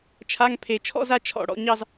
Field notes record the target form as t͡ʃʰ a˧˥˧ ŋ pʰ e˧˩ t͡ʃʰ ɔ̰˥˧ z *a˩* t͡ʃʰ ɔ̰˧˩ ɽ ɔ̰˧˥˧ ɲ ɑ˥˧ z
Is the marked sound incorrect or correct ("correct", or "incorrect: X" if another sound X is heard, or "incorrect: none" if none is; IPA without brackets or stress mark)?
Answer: incorrect: a˥˧